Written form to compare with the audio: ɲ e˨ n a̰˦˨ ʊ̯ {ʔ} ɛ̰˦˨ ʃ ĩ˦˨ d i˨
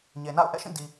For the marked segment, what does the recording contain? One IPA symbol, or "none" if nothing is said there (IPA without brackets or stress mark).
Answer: ʔ